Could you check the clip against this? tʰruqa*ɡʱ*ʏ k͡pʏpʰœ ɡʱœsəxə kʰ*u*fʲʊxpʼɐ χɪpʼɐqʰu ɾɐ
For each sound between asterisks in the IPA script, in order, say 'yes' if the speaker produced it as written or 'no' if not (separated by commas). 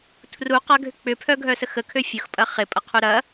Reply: yes, no